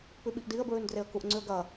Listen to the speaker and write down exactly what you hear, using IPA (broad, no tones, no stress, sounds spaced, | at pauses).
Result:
p ʉ ɓ i ʔ d i ə̯ b ɹ ʉ n d r e ə̯ k u ʔ ŋ͡ǀ ʉ ə̯ ɡ ɐ